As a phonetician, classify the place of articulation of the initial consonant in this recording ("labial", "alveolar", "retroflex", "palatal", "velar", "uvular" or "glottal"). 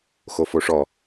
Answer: velar